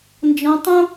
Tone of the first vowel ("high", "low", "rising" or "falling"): high